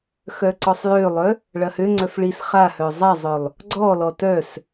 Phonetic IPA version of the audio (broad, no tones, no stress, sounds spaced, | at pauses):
x œ ǀ ɔ sˤ j ø lˠ œ | ɭ ɐ h ø ŋ͡ǀ œ f ɭ i s χ a h œ zˤ a zˤ œ lˠ | ɡ͡ǀ ɔ l ɔ t œ s